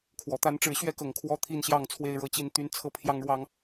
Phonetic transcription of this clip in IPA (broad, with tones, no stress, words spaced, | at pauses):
kʰwɔ˨˩t̪a˦nʈ͡ʂɻ̩˥˨ ɕɥɛ˥˨kɤ˨˩ŋ kʰwɔ˦t̪ʰi˥˨nɕjɑ˥˨ŋ t͡sʰwe˥˨ɪ̯ɻɤ˥˨t͡ɕi˥˨nt̪y˦n t͡sʰɤ˥˨pʰjɑ˦ŋɻwɑ˦ŋ